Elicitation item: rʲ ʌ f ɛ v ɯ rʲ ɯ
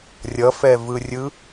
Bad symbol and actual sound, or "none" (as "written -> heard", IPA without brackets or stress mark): none